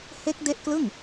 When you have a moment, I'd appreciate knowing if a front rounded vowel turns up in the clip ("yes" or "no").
no